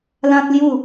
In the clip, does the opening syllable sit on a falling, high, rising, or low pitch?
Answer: high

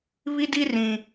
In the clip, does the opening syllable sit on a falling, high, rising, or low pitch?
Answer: high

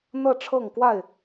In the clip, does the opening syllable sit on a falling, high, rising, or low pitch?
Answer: falling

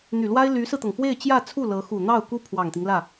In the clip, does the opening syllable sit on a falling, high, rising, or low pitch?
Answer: low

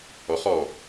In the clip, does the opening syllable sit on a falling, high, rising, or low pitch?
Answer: rising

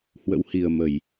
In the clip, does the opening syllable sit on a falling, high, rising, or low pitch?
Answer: rising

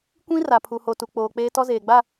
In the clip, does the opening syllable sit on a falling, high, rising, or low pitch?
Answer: high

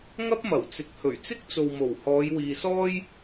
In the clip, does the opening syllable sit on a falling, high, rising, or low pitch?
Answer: high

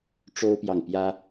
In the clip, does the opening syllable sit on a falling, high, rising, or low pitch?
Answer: high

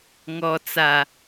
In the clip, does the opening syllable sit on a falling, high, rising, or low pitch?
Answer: low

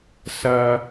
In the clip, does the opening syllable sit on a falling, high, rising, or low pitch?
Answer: low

